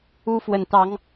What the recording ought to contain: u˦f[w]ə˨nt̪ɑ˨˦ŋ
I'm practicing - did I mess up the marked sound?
no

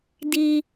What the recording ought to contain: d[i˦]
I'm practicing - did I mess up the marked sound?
no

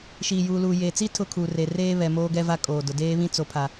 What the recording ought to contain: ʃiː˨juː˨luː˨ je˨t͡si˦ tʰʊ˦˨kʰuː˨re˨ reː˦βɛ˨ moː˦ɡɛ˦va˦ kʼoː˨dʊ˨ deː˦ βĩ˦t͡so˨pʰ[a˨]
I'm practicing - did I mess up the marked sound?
no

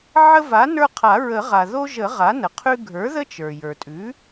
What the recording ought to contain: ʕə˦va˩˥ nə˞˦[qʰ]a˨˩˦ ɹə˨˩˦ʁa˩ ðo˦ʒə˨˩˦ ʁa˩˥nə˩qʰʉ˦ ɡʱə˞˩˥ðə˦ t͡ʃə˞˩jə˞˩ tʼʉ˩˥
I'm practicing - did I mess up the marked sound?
no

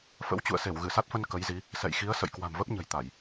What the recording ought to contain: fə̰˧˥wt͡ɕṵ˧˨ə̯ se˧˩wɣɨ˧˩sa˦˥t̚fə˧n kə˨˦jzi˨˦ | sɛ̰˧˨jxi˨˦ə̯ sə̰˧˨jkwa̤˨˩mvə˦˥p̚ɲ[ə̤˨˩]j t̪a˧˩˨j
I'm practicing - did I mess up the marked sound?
no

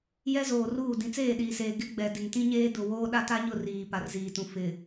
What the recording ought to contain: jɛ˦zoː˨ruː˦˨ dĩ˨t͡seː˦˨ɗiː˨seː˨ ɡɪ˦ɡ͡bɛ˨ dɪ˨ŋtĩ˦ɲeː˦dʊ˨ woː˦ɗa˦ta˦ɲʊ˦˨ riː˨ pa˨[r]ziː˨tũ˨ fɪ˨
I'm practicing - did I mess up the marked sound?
no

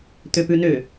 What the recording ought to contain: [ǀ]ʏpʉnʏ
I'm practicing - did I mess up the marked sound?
yes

